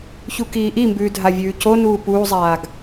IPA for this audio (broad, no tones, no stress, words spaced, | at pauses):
çukiːʔimbʉː dʱavʲʉːconuː puːzˤaːɡ